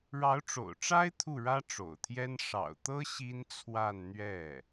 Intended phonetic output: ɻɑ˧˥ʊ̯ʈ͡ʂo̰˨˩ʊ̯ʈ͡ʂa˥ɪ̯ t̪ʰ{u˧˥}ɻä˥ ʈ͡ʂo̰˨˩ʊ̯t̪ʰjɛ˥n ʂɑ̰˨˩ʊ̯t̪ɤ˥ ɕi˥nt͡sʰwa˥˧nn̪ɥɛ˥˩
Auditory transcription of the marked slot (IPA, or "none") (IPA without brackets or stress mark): u˥˩